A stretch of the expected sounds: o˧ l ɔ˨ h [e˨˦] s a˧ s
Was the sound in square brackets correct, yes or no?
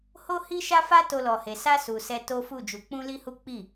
no